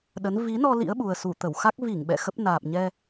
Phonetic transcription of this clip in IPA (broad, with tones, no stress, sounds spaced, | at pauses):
ɗ ə˨˦ n v i˨˦ n ɔ˧ l ḭ˧˥ ə̯ ɓ u˨˩ ə̯ s u˧˩ t̪ ə˧˩ w x a˦˥ k̚ v i˧˩ ŋ ɓ ɛ̰˧˨ x ə˦˥ p̚ n aː˨˩ p̚ ɲ ɛ˧